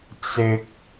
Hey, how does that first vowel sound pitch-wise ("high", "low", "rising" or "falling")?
low